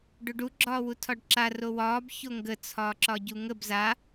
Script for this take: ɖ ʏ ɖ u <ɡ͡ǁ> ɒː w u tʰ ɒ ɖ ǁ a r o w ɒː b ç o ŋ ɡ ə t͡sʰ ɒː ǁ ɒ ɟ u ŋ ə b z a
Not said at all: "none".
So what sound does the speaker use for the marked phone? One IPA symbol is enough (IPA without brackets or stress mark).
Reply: ɡ͡ǁ